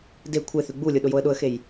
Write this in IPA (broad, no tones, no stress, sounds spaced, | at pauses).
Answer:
d e kʷʰ e θ ʉ ɡ͡b u lʲ o ɗ ʊ j o ə̯ ɗ ʊ ə̯ x e j